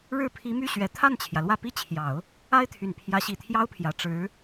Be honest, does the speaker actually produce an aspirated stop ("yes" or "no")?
yes